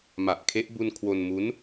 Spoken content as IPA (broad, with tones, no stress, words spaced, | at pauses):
ma˨˩ʔkʰe˦˥ʔ bu˧n kʰwo˧nmu˦˥n